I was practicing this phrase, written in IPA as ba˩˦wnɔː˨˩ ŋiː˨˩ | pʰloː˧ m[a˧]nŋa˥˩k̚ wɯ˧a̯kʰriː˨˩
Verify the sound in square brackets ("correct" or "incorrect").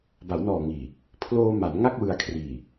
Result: incorrect